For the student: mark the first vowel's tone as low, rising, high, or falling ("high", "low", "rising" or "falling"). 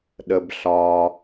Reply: low